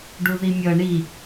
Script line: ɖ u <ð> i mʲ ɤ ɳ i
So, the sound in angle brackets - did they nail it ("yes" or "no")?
yes